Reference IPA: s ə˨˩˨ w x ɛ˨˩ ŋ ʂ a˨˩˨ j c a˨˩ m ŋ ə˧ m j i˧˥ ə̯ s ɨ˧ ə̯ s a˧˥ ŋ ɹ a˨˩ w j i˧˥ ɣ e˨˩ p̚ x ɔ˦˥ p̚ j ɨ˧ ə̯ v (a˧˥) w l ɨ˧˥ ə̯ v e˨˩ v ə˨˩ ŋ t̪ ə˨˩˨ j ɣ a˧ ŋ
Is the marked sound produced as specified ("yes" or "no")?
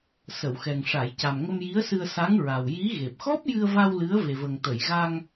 no